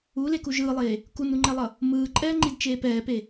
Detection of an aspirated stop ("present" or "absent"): absent